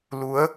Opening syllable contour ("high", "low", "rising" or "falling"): rising